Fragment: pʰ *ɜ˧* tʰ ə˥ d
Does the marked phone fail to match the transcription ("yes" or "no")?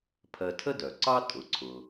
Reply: no